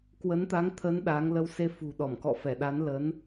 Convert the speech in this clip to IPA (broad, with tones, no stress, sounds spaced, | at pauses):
k w ə˨˦ n t̪ a˨˦ ŋ t̪ʰ ə˨˦ n ɗ aː˨˦ ŋ l ə˧ w s e˧ f ṳ˨˩ ɗ ɔ˧˩ m k ɔ̰˧˨ f ɛ˧˩ ɗ a˨˦ n l ə˨˦ n